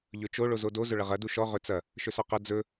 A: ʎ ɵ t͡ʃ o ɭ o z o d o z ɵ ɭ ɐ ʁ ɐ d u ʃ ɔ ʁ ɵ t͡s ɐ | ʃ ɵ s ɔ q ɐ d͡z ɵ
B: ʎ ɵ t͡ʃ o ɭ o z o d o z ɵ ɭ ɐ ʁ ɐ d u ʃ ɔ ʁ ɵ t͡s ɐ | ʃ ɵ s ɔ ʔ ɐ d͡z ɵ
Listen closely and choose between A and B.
A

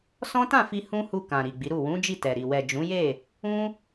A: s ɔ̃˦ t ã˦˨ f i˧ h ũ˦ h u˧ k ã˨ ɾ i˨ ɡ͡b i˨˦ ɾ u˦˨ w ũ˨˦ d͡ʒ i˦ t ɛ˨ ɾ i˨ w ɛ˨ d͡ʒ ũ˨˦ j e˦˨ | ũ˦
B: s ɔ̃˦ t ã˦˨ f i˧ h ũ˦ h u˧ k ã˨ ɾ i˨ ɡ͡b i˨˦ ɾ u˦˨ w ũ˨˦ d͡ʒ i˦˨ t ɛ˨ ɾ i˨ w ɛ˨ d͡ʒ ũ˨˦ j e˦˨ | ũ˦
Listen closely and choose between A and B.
B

